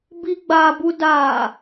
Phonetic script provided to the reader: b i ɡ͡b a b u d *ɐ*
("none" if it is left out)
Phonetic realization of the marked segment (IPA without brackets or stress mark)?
a